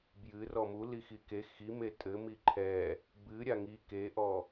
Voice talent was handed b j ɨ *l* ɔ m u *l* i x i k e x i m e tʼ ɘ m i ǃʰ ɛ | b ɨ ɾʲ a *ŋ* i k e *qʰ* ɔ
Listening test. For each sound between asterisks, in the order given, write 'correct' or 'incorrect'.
incorrect, correct, correct, incorrect

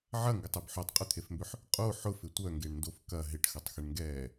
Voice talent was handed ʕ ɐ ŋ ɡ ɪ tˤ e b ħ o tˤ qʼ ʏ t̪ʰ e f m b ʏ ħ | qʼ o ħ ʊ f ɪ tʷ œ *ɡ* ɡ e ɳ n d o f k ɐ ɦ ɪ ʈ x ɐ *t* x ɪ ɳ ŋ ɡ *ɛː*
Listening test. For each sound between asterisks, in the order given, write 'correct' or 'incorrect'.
incorrect, incorrect, correct

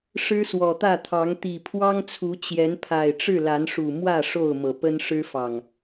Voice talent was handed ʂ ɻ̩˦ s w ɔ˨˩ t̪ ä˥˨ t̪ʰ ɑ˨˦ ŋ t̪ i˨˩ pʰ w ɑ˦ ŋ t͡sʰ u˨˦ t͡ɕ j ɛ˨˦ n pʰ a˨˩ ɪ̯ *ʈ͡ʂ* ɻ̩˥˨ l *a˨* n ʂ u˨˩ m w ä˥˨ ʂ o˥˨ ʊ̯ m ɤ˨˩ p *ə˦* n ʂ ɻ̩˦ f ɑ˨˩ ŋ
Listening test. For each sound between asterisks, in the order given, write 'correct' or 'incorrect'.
correct, incorrect, correct

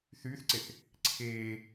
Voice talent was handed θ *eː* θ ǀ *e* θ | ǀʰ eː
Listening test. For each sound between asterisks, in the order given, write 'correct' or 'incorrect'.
incorrect, correct

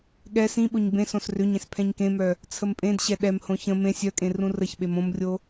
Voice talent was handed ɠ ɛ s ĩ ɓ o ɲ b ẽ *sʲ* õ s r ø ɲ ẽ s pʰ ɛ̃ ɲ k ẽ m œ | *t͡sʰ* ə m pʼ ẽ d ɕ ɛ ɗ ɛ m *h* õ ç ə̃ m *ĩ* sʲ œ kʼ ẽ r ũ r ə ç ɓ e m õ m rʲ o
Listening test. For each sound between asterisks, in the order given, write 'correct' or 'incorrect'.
incorrect, correct, correct, incorrect

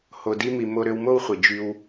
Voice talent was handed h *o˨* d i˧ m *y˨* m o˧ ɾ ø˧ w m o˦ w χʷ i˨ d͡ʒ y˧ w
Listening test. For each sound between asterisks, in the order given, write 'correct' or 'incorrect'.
correct, incorrect

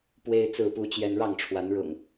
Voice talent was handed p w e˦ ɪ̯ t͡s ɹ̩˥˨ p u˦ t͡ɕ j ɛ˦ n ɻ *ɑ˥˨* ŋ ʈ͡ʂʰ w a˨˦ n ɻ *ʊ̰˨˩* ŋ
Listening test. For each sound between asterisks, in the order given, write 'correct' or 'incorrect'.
correct, correct

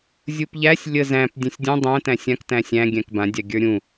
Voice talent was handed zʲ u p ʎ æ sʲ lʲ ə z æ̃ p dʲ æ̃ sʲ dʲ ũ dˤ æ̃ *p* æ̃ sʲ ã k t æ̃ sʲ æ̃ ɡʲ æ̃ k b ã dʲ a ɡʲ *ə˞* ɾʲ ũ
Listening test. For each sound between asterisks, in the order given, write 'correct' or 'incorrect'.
incorrect, correct

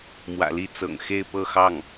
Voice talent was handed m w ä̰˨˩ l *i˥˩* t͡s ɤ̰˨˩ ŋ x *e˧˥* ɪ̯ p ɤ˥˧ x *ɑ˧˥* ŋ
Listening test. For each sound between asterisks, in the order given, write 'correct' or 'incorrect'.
correct, incorrect, incorrect

